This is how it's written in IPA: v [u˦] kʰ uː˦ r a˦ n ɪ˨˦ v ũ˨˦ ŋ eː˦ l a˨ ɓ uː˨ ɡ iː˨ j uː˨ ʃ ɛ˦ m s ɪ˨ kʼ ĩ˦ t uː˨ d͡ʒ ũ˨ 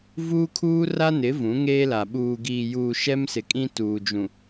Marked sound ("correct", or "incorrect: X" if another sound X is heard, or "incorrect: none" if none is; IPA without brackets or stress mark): incorrect: uː˦